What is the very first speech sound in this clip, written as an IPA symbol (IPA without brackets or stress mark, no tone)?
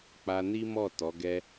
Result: k͡p